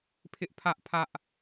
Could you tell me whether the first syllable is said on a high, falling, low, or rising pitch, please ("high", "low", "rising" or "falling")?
high